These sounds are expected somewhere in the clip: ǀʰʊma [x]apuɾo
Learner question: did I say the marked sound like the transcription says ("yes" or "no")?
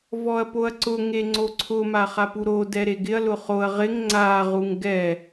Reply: no